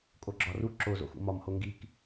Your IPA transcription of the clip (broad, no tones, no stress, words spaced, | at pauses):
kʼoɡ͡ǁɒru ǁo zo̰xṵmɒm hoŋɡik